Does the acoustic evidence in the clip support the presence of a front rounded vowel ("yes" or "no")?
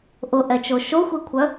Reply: yes